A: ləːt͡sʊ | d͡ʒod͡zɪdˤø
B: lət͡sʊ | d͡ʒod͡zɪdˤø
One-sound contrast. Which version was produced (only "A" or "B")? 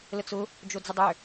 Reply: B